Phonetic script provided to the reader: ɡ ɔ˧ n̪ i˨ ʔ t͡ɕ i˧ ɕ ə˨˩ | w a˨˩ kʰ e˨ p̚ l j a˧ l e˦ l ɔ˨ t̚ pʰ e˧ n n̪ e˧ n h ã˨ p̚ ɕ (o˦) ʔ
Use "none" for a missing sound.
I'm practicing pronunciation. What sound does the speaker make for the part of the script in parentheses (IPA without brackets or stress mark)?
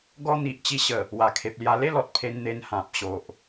o˨